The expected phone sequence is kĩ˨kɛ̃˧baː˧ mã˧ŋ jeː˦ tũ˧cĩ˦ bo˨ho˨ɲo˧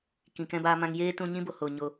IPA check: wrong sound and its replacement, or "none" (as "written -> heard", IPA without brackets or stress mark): c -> ɲ